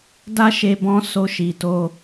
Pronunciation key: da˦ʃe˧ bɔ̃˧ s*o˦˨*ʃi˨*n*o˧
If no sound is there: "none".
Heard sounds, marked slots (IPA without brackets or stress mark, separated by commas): o˧, t